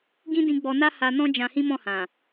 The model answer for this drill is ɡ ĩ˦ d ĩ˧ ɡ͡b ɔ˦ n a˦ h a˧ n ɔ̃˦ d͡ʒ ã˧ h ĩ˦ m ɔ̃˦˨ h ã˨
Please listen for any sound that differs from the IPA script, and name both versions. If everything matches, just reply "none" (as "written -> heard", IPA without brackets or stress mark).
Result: ɔ˦ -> ɔ˧